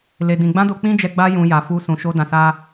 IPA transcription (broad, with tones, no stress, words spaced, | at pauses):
le˧dĩ˧ ɡ͡bã˦do˧k͡pĩ˦d͡ʒɛ˧ ɡ͡ba˧jũ˨ ja˨fu˧ sũ˨ʃo˧dã˨sa˧